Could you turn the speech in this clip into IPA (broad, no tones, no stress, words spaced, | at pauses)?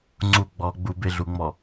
ŋ͡ǀu ɡ͡bɔ ɡ͡bubeɮuŋ͡mɔ